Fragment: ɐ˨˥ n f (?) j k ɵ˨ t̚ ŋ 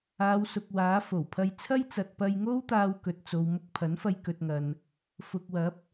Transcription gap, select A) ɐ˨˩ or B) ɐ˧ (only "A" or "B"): B